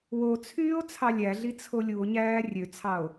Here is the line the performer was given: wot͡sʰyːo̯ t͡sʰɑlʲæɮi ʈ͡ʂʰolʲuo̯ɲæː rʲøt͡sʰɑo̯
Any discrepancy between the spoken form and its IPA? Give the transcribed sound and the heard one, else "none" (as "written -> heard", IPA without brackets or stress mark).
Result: ʈ͡ʂʰ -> t͡sʰ